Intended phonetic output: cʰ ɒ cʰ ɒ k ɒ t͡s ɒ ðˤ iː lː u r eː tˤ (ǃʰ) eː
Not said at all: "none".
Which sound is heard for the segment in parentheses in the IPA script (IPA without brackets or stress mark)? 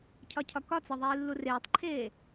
ǃʰ